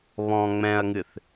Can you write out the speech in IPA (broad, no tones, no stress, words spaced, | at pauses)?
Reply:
βɔ̃ ŋ͡mɛ̃ɐ̯ŋɨθ